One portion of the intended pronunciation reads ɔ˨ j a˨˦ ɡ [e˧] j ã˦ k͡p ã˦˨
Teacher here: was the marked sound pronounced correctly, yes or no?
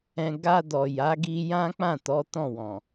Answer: no